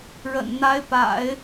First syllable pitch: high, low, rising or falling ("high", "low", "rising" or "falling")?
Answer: low